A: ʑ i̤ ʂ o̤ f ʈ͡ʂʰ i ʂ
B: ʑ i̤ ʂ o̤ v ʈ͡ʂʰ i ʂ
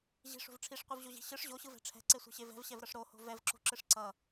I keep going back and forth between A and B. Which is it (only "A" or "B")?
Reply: B